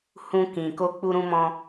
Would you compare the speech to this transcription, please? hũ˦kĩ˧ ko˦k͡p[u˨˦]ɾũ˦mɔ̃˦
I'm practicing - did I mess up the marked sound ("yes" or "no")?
yes